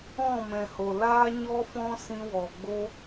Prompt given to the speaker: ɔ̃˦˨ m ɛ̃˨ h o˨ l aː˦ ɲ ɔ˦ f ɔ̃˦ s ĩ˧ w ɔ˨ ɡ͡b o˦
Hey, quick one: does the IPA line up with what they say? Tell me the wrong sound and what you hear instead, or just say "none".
none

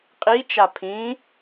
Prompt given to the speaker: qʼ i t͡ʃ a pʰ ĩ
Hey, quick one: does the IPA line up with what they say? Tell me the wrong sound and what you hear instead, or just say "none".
none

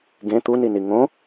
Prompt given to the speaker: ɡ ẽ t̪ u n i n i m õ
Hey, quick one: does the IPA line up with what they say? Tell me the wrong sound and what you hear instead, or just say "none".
m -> ŋ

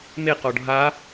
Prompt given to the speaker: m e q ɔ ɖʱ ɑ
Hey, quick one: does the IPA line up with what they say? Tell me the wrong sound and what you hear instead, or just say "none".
ɑ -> a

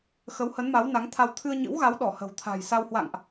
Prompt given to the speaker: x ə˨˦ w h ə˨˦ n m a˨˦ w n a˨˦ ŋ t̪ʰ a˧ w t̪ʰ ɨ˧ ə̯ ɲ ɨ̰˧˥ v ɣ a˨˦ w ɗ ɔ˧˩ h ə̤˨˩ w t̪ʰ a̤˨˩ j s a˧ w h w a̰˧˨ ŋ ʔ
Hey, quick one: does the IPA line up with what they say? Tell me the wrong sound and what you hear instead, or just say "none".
v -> w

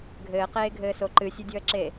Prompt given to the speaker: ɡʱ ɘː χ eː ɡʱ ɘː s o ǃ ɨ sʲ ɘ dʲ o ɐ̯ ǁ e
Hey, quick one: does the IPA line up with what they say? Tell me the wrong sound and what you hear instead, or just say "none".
χ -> q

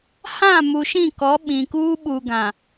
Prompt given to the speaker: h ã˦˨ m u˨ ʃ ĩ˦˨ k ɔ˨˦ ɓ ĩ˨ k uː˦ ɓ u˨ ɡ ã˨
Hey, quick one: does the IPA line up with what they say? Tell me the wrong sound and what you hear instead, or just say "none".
none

